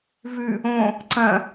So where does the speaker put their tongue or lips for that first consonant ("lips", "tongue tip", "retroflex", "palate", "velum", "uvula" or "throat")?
lips